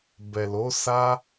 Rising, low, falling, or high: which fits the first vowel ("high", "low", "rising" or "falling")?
low